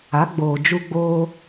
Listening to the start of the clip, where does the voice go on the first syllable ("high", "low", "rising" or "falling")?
rising